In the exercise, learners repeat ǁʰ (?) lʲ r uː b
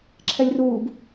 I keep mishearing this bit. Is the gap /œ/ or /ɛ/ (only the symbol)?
ɛ